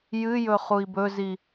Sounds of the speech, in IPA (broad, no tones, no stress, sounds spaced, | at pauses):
j ɨ j ɵ χ u i̯ b ɵ z i